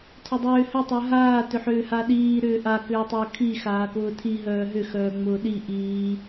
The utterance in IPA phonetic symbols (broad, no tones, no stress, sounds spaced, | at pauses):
tʰ ʏ dˤ ʏː h ʏ tˤ œ ɦ aː t ʏ ħ ʏː h a ɗ iː ɾ ʏː ʔ a k ʏː tˤ ʊː kʰ i x aː k ʊː tʰ i ɦ œː ɦ ʏ x œː ŋ͡m ʊː ɗ i ʔ iː